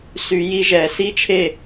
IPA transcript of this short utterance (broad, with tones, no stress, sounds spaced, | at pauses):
s y˨˩˦ j i˧˥ ʒ ɛ˨˩˦ s i˥˧ t͡ʃʰ e˥˩